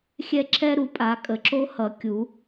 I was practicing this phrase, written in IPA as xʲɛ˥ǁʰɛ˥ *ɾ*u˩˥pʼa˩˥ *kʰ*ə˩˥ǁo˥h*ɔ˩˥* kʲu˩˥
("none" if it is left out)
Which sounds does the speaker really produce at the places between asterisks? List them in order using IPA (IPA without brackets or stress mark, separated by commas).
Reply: ɾ, kʼ, ʌ˩˥